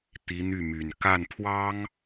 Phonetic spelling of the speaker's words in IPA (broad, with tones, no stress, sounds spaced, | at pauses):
t̪ i˧˥ n̪ y˥˩ m y˨˩ n k a˥˩ n pʰ w ɑ˥ ŋ